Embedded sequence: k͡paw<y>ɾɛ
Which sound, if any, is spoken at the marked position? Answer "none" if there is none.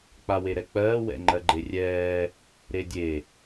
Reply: e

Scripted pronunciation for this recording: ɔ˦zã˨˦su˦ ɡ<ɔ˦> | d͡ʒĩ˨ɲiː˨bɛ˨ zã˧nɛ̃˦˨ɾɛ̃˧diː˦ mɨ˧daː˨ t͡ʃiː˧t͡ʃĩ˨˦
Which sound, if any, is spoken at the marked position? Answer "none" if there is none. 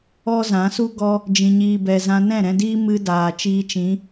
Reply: ɔ˦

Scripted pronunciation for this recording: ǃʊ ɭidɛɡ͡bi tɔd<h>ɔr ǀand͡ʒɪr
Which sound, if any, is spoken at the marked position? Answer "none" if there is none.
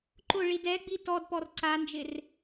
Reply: p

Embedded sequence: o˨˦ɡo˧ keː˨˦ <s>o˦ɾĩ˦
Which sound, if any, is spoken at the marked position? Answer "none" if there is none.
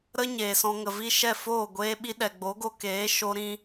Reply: ʃ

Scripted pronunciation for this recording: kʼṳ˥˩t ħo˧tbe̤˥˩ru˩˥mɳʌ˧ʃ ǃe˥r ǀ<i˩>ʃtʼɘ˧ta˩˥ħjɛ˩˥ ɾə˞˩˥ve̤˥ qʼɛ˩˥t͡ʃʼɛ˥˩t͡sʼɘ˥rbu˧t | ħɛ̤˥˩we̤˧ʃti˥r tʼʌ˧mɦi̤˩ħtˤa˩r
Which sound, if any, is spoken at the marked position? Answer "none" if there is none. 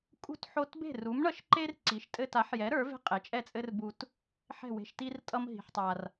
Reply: i˩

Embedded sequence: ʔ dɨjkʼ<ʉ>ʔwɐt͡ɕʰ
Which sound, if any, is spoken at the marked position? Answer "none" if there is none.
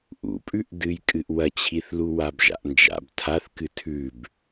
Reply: ɨ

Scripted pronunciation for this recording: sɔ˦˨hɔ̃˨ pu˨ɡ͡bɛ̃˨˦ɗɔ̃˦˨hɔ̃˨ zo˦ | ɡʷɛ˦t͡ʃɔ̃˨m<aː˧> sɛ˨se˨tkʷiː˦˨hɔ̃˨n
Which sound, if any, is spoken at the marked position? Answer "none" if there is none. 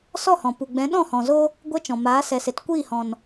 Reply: aː˨˦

